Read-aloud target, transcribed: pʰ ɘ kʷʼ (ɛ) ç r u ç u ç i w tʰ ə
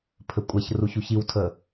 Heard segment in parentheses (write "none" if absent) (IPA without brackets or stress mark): ɛ